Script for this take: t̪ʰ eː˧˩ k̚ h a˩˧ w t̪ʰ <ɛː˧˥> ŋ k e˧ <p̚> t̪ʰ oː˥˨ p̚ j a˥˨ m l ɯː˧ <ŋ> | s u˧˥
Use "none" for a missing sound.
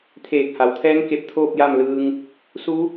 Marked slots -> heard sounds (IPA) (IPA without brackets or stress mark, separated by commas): ɛː˧˥, p̚, ŋ